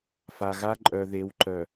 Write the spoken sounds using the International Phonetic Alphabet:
fa˨ɣa˦ ǃʼœ˨ðe˨˦wǃœ˨

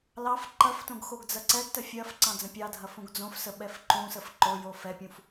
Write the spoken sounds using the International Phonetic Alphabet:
lɑf ǃɐftõɡ xoɡd͡zɐǀɛɡtə fʲɐf ǀɑ̃d͡zə̃pʲɑdʱɐ fũɡd͡zõfsə ɓɛfǃũsəf ǃo jofɛpʲũf

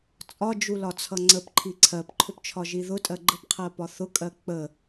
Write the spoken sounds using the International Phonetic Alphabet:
t͡sʼɒd͡ʒulɒt͡sʰʌ ŋ͡ǀəpǃʰi ǀʰɜpǃʰʊpt͡ʃʰɒʒi ðʊtʼɜ ɡ͡ǃəpqʰɜpɒ θʊkʼɜ k͡pə

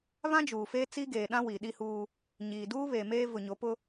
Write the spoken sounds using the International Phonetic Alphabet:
βã˦d͡ʒuː˨feː˦t͡si˦ ɡeː˨ɗã˦ wi˨ɗi˦huː˦ | ɲiː˨duː˦ βeː˨meː˦ vʊ˨ɲo˨˦pʊ˦

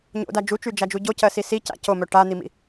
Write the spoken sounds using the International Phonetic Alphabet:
ɲo̰da d͡ʒut͡ʃyd͡ʒad͡ʒu ɟocɜsi sica̰ comœ ʈan̪imḭ

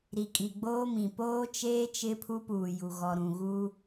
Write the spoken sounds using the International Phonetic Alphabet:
ɾi˨kʼi˨ɡ͡boː˦mĩ˨ poː˦t͡ʃeː˦ t͡ʃɪ˦pʰu˦ puː˨ju˨ ɣɔ˨ɾũ˨ɣuː˦

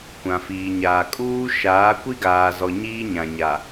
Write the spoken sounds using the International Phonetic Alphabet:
kʷã˨fiː˨ɲaː˨ kʼuː˦ʃaː˨˦ kʷi˦ɡaː˨zɔ˨ ɲiː˦ɲã˨ɲa˨

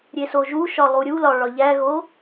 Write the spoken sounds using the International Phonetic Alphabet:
ɾʲesoʒuʃɒ lˠuɾʲulɒ ɭɒʎæɣo

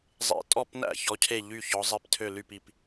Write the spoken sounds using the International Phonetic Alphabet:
zˤḛ˧˩tʼɔ˥˩pnæ̰˥˩ çɔ˨˥cʰe˥˩ ʎy˥˩ çɔ˨˥ zˤi˨˥ptʰø˥˩ ly˥˩pi˧˩p

